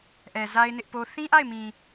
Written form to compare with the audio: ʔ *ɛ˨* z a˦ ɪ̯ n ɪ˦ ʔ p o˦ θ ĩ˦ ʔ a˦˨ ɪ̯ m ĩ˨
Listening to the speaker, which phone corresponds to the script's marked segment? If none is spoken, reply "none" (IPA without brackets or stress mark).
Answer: ɛ˨